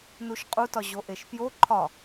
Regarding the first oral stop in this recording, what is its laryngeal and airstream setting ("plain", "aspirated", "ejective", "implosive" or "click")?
ejective